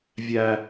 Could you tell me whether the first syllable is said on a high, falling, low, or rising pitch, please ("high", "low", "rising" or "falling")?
low